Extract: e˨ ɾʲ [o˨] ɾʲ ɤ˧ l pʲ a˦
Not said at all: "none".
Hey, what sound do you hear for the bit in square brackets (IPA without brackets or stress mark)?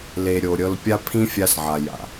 o˨